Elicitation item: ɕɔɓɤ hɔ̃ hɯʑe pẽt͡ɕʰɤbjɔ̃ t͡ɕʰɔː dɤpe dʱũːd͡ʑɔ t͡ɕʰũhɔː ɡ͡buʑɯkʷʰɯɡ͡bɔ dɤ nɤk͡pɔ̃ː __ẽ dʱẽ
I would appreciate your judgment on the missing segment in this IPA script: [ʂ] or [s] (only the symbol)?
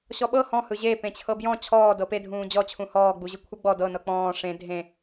ʂ